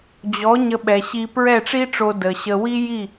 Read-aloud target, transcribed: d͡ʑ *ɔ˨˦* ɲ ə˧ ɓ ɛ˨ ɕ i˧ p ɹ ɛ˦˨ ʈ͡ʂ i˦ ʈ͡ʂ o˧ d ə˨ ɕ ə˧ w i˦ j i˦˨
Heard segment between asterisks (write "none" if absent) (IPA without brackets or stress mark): ɔ˨˦